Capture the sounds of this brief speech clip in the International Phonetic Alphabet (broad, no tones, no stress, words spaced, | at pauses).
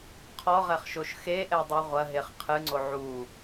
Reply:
qʰɔʁɛχʃoʃ xeʔɛdˤu ʁʷɐɦeχ qʰɨŋ͡ǀo ʕu